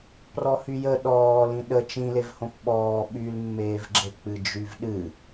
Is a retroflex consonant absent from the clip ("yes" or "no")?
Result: yes